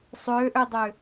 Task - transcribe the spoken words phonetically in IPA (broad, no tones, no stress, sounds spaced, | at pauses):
sˤ ø ʔ ø dˤ ø